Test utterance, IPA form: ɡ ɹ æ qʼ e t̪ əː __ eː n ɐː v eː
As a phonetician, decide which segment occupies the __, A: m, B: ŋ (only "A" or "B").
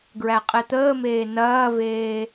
A